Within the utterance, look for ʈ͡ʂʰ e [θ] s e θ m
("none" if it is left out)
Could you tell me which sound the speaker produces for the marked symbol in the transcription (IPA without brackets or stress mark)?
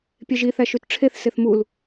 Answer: θ